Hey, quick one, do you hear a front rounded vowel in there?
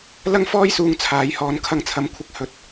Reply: no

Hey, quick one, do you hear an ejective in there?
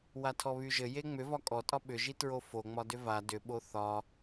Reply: yes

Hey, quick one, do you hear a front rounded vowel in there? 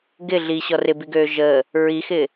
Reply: yes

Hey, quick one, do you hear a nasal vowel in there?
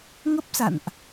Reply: no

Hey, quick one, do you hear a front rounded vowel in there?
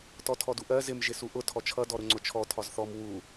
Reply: no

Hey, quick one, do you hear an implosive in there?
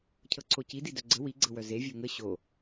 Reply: no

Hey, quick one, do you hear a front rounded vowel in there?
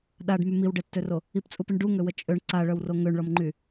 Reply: yes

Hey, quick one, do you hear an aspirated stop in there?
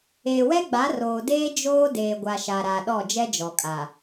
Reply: no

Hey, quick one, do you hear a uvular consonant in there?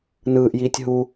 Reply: no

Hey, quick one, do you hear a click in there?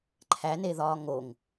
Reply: yes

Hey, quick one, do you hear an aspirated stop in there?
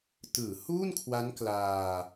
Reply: yes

